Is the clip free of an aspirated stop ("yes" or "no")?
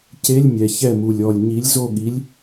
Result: yes